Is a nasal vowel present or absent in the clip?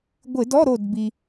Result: absent